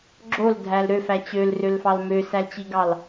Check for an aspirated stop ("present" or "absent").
absent